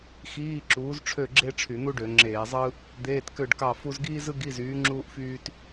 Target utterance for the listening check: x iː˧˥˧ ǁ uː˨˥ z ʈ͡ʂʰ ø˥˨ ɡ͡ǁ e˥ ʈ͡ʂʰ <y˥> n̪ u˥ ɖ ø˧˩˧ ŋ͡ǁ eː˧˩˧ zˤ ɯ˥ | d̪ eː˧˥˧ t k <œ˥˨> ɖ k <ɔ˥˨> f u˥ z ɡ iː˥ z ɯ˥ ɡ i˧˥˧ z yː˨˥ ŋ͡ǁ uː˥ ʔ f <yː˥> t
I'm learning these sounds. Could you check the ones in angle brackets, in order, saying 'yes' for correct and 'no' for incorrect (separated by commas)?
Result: no, no, no, yes